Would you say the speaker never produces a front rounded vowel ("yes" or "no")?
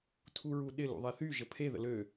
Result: no